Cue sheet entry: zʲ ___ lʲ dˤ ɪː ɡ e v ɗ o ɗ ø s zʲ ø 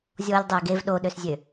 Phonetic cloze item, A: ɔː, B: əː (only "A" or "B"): A